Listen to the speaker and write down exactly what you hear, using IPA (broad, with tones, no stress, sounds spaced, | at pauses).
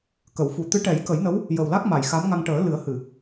k ə˨˩˨ w f u˨˩ t̪ ɨ˧˥ ʈ ɛ˨˩˦ j k ə˨˩˦ j n ə˧˥ w | j ə˨˩ w l a˦˥ k̚ m a˨˩˨ j x a˧˥ m ŋ a˧ ŋ ʈ əː˨˩˦ l ɨ˨˩˦ ə̯ h ɨ˨˩˨